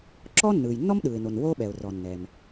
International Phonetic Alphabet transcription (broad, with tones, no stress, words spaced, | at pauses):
ǁɔː˥nːɯː˩jnːɔ˥m ɗɯː˩ɪ̯no˩n woː˥ɓɛ˩ʊ̯ rɔ˩nːɛ˩m